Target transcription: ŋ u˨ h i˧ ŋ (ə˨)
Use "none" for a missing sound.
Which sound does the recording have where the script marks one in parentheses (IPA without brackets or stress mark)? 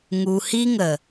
ə˨